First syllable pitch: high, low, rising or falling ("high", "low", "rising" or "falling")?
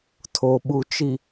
low